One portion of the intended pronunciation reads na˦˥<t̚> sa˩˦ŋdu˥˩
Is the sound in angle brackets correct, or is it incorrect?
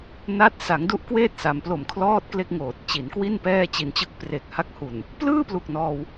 correct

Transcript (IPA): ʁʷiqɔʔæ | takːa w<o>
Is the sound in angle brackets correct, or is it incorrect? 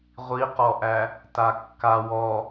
incorrect: ɔ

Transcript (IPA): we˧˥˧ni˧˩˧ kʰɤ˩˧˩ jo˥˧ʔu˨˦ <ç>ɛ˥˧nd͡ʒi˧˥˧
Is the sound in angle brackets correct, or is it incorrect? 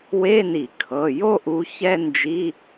correct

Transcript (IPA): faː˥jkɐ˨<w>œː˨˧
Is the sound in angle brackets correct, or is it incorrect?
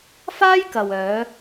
correct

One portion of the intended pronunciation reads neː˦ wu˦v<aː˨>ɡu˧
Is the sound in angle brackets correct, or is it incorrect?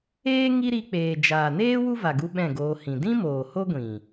incorrect: a˨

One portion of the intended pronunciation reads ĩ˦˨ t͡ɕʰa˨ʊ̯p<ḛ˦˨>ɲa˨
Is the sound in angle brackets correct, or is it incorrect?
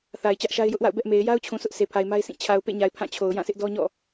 correct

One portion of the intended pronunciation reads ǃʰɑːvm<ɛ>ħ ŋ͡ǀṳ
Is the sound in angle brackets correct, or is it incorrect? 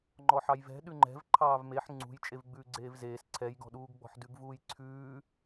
incorrect: e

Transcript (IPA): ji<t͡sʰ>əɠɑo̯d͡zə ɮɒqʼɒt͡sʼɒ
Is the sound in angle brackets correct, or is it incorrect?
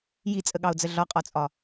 incorrect: t͡sʼ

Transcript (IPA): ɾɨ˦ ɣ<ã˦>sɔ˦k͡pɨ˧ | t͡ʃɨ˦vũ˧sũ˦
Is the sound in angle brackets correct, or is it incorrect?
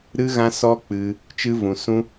correct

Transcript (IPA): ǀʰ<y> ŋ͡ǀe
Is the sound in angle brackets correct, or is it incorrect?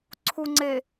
incorrect: u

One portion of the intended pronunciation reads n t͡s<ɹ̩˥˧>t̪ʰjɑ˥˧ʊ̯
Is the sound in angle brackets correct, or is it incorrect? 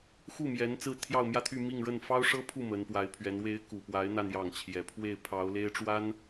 correct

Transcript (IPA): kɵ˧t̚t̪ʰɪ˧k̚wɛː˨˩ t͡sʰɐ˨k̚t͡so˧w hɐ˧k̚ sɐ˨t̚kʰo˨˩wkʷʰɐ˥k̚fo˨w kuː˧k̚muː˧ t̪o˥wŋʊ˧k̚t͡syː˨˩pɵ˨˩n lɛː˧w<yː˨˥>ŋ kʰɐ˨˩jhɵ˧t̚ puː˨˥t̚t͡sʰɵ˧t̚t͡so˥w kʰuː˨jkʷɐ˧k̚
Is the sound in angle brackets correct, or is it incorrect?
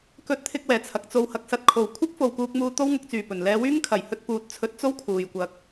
incorrect: yː˥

